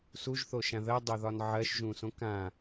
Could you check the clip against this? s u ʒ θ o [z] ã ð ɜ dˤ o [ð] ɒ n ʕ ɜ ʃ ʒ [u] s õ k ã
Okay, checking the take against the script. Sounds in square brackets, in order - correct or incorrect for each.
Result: incorrect: ʃ, correct, incorrect: ũ

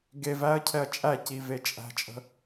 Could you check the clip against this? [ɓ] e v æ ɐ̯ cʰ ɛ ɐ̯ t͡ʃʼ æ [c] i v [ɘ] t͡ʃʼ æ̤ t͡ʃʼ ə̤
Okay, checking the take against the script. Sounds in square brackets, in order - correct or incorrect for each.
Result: incorrect: ɡ, correct, incorrect: e

